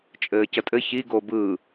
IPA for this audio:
t͡ʃʼ ɘː c ə tʼ ɘ ç i ɡ o b ɯ

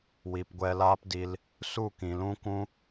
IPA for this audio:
w i˨ p ɡʷ ɛ˧ l aː˦ p d i˧ l | s u˦˨ k ĩ˨ l ũ˦ kʷ ũ˦

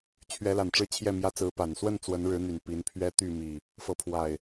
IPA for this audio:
t͡ɕʰ ɥ ɛ˨˦ l a˨˩ n ʈ͡ʂ ɻ̩˦ t͡ɕʰ j ɛ˥˨ m j ä˦ t͡s ɹ̩˨˦ p a˨˩ n s w ə˥˨ n t͡s w ə˨˦ n ɻ ɻ̩˨˦ n̪ y˨˩ n p i˨˦ n pʰ ɥ ɛ˦ t̪ y˥˨ m i˨˩ | f ɤ˨˦ pʰ w a˨˩ ɪ̯

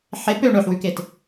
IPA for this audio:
ħ e p ø ɳ ɵ ħ w ʉ k e t

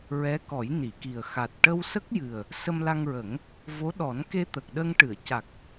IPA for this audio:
ɹ ɛ˧˥ k ɔ˨˩˦ j n i˨˩˨ k i˨˩ ə̯ x a˨˩ t̚ ʈ ə˧ w s ə˦˥ k̚ j ɨ˨˩ ə̯ | s ə˧ m l a˧ ŋ ɹ ə˨˩˦ ŋ | v o˧˥ ɗ ɔ˨˩˦ n k e˧ t̪ əː˨˩ k̚ ɗ ə˧ ŋ ʈ ɨ˨˩˨ ə̯ c a˨˩ k̚

